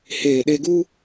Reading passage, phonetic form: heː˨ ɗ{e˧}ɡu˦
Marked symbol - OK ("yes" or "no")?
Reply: yes